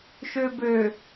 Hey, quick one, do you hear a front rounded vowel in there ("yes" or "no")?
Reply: yes